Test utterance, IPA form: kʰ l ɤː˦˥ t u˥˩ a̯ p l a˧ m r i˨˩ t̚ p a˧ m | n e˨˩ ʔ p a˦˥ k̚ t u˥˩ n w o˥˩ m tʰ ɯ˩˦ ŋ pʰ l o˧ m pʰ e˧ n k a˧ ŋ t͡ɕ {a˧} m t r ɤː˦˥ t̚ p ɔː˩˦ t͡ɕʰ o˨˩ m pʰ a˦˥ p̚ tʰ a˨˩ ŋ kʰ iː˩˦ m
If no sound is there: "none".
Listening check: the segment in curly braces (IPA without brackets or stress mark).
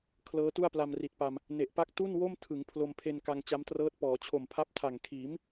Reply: a˦˥